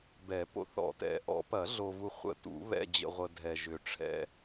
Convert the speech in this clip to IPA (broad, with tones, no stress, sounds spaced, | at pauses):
b ɛ˨˩˦ p o̰˨ θ ɔ̰˨˩˦ t ɛ̰˨˩˦ ʔ ɔ̰˨˩˦ p ɐ˨˩˦ ɮ o˨ v u˨ χʷ ə̰˨˩˦ t ṵ˨˩˦ β ɛ̰˨ d͡ʑ ə̰˨ ʁʷ ə˨ dʱ ɛ˨ ʒ ʏ˨ ʈ͡ʂʰ ɛ̰˨